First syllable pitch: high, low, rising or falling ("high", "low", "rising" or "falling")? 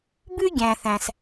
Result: high